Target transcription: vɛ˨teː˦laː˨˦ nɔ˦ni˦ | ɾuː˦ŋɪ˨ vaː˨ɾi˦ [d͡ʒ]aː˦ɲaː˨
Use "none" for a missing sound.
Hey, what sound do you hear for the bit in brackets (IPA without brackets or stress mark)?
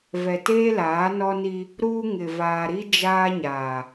d͡ʒ